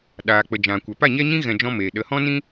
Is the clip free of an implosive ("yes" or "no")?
no